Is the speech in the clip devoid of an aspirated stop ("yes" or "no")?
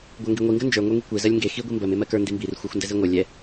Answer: yes